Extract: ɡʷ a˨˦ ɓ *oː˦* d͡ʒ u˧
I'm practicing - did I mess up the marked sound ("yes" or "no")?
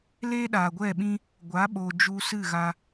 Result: yes